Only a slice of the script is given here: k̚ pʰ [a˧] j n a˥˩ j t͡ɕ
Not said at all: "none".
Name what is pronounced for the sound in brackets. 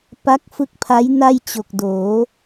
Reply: a˦˥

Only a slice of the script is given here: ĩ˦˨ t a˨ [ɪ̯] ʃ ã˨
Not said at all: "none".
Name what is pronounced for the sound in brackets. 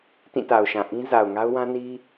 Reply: ʊ̯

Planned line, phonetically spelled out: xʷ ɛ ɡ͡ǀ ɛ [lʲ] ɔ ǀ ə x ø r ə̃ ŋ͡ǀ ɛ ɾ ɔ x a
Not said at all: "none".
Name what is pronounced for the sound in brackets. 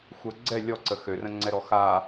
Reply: lʲ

